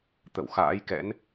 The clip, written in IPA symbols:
t̪ə̰˧˨w xa̰ː˧˥jkɛ̰˧˥n

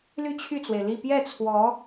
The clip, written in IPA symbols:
ly˥˧t͡ɕʰy˥˩t͡swe˩ɪ̯li˥˧ pjɛ˥˩t͡sʰwɔ˧˥

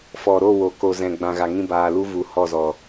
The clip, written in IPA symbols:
fɔ˨ɾo˦˨wo˨ ko˨zɛ̃˨ ɡ͡bã˨ɣa˨ŋĩ˧baː˨ lu˦vu˨˦hɔ˦˨zɔ˨

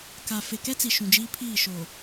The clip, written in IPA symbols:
ka˨ fe˨kɛ˦t͡si˨ ʃũ˨d͡ʒiː˦pʰiː˦˨ ʃo˨

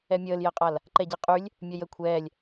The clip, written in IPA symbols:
ɛmʲəːljɛqʼal | ǃɛɟiqʼylʲ | mʲœjə kʷʰɛːlʲ

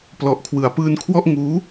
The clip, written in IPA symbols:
plɔ˨˩ʔkʰwɯ˩˦a̯pɯː˧nkʰwɔ˥˩ʔ ŋuː˦˥

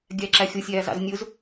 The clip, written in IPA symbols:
ɡʲæǁæxʲʊsʲæː zɑ̰znʲʊz

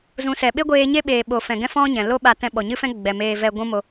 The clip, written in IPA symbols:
zũ˨˦sɛ˨ ɓe˦ɡʷeː˧ɲe˦ ɓeː˧ ɓo˨fɛ̃˨ɡɛ̃˦fɔ̃˦ ɲɛ̃˨ lo˦ ɓa˧tɛ̃˧ɓɔ˨ɲɨ˦ fɛ̃˦ ɡ͡bɛ˨meː˧ vɛ˧ ɡʷũ˦mo˧

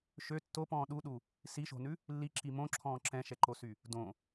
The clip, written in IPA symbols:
ʃø tːopɔ̃ː ɗuɗu | siʃo̤nʉ | lːiǁi mõǁʰɔ̃ː ǁɛ̃ʃɛǃosy | dõ

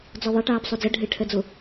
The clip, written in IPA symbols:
d͡zɔðˤɛ ʈaːpsˤod͡zɛ ɖʱɪʈʰɛd͡zʊ

